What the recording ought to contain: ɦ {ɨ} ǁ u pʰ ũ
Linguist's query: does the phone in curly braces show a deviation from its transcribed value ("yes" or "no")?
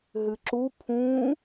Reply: no